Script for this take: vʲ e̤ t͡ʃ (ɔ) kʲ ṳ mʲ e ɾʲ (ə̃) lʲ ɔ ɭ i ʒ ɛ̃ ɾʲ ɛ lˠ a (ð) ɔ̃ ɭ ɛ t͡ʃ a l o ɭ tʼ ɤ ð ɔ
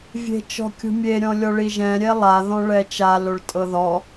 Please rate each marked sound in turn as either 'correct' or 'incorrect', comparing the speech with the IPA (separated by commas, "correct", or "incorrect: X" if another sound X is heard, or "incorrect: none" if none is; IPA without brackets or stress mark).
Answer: incorrect: ɔ̤, incorrect: ɔ̃, correct